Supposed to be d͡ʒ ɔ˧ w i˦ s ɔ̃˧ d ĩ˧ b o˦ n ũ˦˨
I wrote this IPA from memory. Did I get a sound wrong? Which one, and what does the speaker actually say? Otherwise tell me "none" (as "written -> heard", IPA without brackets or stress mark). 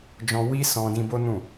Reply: ɔ˧ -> ɔ̃˧